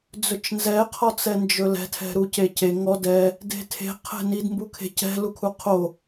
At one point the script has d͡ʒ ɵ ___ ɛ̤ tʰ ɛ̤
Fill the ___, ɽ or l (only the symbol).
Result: l